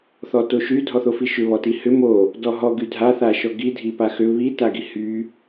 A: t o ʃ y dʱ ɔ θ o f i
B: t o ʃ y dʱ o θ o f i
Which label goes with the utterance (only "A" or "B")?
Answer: A